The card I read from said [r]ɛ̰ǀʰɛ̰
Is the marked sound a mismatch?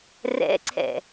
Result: no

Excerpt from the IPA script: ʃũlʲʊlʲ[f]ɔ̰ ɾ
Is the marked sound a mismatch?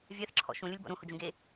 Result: yes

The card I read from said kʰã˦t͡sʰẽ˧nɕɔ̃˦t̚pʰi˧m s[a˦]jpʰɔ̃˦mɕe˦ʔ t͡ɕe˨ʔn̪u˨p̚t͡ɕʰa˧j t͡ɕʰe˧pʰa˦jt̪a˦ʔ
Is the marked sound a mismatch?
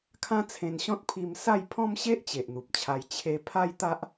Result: yes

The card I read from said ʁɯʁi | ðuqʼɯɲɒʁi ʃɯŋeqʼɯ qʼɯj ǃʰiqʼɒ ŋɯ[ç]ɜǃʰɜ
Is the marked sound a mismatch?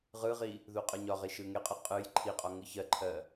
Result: no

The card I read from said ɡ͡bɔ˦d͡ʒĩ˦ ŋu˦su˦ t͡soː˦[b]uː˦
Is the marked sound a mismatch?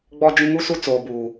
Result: no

